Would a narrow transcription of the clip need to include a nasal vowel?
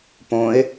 yes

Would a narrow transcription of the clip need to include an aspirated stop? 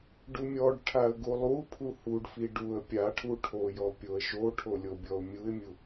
yes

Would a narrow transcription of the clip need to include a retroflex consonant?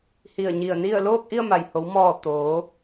no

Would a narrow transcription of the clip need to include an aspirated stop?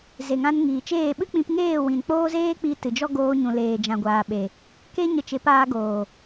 no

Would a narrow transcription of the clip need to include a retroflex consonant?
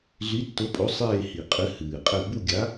no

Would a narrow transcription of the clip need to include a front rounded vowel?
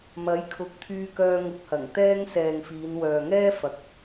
yes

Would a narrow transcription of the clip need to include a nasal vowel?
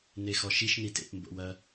no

